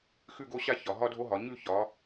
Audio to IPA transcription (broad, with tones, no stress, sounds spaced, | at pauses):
x ʉ˥˧ ɡ o˥˧ ɕ a˥˧ ç ɒ˩ ɦ ɒ˥ dʱ o˥ ɦ ɒ˩˧ ɲ ʉ˥˧ ç ɒ˩˧